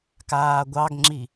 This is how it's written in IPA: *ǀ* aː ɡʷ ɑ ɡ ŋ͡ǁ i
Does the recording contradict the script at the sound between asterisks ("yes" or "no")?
yes